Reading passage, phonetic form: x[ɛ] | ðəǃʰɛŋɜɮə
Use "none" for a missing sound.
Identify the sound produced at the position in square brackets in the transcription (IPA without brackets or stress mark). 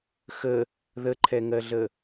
ə